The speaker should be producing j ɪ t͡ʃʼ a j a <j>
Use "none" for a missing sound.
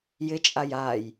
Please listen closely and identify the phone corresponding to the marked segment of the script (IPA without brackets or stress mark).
j